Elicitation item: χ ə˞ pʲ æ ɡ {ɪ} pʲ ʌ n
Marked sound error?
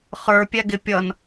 no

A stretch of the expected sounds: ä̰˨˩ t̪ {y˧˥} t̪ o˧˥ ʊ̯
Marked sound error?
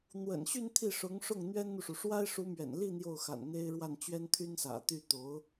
yes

